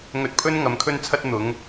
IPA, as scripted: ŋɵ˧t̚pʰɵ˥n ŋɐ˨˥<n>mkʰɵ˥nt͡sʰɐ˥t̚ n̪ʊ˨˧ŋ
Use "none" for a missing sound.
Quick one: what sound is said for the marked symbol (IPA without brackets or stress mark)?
none